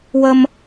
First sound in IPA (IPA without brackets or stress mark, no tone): w